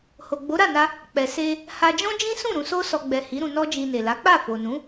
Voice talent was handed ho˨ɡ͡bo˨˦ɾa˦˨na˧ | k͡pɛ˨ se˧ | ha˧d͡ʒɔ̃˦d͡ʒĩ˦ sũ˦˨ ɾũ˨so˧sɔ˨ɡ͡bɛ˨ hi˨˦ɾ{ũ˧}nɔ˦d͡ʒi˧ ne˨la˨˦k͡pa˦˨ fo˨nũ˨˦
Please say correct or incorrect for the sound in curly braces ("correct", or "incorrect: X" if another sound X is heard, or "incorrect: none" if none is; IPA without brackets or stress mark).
correct